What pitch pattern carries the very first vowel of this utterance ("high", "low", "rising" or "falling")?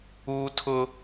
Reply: high